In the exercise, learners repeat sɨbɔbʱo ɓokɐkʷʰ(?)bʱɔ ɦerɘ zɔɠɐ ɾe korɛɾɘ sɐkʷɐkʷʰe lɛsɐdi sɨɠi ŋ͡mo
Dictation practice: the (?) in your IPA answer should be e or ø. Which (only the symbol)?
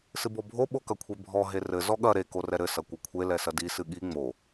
e